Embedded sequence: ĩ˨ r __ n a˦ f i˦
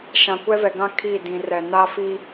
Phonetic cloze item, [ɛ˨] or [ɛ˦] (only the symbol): ɛ˨